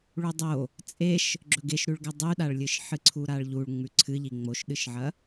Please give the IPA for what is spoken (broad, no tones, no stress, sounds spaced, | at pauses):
ɭ u dˤ o | t͡sʼ e ʃ | ɡ͡ǁ ɵ ɡ e ʃ ɾ ʉ ɭ ɡ a dˤ ʉ ɗ a ɭ lʲ ɨ ʃ ħ ɨ ǀʰ u ɾ a ɭ ʎ u ɭ ŋ͡m ʉ ǀʰ ɨ ʎ i ŋ͡m o ʃ ɗ ɨ ʃ ʕ ɐ